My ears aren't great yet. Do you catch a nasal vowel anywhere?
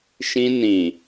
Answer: yes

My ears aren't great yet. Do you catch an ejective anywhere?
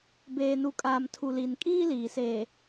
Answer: yes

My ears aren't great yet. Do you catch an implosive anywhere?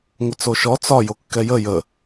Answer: no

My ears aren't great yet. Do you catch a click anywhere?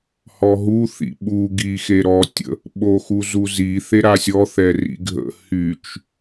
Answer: no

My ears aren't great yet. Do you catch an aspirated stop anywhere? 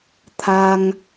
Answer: yes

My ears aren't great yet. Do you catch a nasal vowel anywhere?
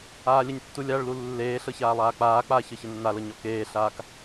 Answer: no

